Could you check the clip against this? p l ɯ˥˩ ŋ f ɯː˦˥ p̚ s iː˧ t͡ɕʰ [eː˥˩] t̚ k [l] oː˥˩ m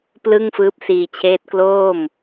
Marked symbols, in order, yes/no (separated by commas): no, yes